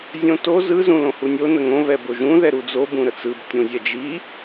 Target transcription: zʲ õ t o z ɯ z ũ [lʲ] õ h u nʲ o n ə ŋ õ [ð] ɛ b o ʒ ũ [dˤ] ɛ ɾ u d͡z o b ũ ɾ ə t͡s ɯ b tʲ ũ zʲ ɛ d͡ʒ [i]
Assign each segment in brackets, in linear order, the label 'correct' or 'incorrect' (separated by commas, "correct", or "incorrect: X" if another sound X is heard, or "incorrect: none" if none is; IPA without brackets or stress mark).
incorrect: l, incorrect: β, incorrect: ð, correct